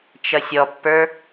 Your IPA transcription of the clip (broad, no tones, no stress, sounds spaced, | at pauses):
t͡ʃ ʌ sʲ ɔ pː ə˞